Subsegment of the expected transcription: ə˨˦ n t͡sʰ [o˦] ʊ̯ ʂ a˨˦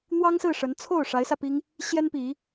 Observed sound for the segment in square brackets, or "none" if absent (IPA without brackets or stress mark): o˥˨